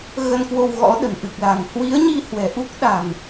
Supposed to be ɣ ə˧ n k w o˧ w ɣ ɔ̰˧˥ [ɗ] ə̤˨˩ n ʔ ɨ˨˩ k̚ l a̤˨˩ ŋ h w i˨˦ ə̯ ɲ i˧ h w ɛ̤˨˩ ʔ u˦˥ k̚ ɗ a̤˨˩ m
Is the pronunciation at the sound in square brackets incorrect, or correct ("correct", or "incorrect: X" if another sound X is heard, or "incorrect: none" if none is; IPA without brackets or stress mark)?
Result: correct